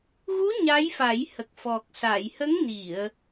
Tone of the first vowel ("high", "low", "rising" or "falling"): rising